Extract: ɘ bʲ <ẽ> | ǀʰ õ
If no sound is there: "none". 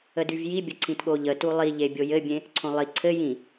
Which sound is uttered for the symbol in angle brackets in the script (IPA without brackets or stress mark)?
ẽ